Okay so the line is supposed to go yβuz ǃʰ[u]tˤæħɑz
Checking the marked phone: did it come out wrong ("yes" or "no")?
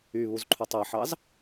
no